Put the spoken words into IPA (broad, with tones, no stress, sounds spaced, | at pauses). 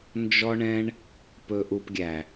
n d͡ʒ ɔ˦ ɳ ɛ̃˦ ɳ | p ɵ˦ ʔ u˧ p ɡʲ æ˨